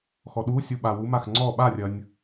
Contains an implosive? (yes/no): yes